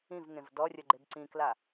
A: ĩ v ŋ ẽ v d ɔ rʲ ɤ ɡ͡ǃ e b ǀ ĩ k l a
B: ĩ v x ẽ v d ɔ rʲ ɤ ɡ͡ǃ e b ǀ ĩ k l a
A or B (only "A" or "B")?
A